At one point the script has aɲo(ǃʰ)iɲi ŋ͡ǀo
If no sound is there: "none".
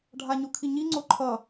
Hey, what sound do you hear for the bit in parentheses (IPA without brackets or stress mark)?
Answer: kʰ